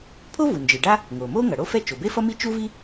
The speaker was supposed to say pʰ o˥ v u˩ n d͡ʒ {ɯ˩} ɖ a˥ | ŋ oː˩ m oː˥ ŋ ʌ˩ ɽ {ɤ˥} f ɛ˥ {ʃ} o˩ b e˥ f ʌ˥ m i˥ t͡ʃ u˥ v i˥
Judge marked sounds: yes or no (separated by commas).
yes, no, no